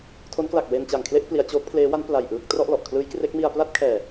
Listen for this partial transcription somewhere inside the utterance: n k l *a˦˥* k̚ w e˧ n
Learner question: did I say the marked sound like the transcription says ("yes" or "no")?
no